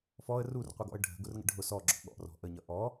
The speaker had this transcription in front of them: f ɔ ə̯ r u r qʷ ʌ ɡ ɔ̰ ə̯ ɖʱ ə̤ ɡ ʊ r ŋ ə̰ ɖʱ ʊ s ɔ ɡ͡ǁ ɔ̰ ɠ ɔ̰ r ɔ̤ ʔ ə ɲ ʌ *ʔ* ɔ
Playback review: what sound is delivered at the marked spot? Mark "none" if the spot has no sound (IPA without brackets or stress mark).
ʔ